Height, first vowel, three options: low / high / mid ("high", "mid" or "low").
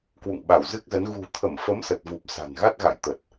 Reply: high